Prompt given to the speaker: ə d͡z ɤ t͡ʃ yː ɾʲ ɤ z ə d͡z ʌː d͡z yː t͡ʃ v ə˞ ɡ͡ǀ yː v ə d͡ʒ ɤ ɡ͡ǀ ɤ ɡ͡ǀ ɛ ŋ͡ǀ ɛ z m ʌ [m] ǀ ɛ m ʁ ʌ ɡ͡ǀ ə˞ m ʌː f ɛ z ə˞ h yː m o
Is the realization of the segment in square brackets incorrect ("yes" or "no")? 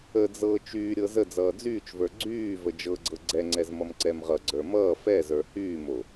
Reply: no